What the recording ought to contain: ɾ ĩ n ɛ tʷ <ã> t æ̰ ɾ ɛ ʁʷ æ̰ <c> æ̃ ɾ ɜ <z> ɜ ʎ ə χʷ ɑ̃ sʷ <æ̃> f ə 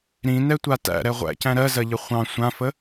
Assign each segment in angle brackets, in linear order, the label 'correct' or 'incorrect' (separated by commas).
incorrect, correct, correct, incorrect